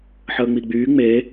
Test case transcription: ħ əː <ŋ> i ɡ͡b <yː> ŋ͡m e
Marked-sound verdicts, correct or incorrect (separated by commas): incorrect, correct